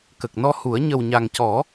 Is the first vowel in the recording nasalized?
no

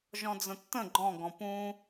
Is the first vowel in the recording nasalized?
yes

